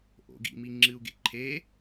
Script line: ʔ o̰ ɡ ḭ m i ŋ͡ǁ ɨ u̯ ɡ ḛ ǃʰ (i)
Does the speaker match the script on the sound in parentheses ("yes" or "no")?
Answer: no